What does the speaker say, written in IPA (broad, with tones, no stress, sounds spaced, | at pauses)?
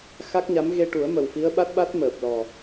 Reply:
x a˦˥ k̚ ɲ a˧˥ m ɣ e˧ ʈ u˨˩˦ ə̯ m ə˨˩ w f i˧˥ ə̯ ɓ a˦˥ t̚ ɓ a˦˥ t̚ m əː˨˩ p̚ l ɔ˨˩